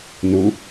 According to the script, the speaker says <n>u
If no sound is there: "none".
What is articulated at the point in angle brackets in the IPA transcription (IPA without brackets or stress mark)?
n